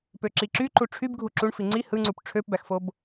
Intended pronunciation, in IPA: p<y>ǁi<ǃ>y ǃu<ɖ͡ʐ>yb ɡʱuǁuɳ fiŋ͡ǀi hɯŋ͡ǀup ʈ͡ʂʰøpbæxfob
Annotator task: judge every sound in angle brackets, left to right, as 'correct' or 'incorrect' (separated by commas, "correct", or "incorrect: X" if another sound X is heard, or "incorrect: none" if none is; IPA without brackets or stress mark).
incorrect: ø, incorrect: ǁ, incorrect: ʈ͡ʂʰ